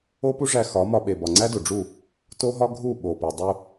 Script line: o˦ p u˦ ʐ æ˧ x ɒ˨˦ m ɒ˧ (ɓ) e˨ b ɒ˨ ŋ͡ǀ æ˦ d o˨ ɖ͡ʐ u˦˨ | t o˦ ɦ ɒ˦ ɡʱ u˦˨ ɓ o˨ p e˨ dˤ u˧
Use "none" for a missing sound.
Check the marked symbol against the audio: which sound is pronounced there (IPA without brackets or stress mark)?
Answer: ɓ